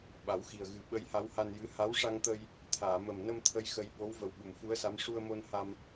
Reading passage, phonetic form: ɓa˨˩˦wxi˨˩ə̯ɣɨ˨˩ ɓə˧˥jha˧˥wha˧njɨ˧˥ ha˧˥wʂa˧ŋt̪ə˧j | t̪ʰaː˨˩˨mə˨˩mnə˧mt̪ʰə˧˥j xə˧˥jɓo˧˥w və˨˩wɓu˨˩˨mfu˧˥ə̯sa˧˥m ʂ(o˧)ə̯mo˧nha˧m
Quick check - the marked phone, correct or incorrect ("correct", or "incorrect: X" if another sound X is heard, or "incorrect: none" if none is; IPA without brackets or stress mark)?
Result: incorrect: u˧